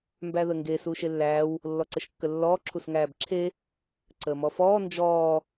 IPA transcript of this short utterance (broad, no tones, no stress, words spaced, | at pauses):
mbæðəŋɡe suːʃelːæːw | lːɔǀəʃkːəlːɔː ǁʰusŋæːbǁʰe | ǀəːmɔfɔː nd͡ʒɔː